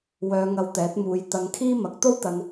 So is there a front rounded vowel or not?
yes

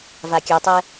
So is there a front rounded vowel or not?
yes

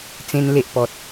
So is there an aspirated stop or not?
no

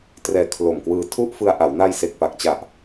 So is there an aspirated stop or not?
yes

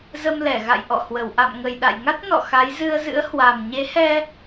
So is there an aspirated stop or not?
no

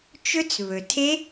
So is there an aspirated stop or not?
yes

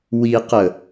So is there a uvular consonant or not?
yes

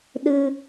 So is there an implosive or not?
yes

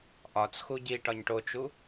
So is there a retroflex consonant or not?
yes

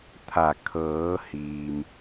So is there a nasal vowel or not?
no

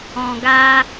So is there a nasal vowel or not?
yes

